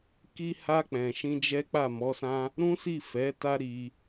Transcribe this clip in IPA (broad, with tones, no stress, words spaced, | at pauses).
ki˧ha˧ k͡pɛ̃˨ʃĩ˧ d͡ʒɛ˦k͡pa˦˨ mɔ˨˦sã˦ | ɾũ˦si˦˨ fɛ˨˦ ta˧ ɾi˧